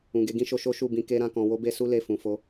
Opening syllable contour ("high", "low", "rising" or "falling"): low